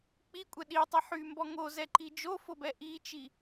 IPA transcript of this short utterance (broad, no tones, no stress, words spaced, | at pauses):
k͡pikʷʼɛ ɗitˤi ħymbɔ ŋozɛǃi d͡ʒofobɛ ʔit͡ʃi